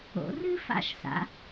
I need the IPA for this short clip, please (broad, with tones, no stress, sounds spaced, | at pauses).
o̰˩˧ r ɨ˥ f a̰˧˩ ʃ s a̰˩˧